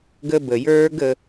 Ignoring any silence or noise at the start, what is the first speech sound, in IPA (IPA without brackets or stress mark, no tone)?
ɡ